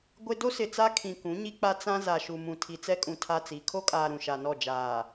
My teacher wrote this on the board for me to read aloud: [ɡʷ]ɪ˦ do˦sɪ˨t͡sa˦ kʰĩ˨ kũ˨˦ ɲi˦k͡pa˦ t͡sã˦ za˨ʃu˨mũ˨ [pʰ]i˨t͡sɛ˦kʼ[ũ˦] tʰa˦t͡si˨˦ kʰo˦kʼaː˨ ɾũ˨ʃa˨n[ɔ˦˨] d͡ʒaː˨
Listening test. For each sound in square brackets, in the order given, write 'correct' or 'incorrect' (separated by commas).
correct, incorrect, incorrect, correct